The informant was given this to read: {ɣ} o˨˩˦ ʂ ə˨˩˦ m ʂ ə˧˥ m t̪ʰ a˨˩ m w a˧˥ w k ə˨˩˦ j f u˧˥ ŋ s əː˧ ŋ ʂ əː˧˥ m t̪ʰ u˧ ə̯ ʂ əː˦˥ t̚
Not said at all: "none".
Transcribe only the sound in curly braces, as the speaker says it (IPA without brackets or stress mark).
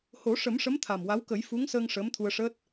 h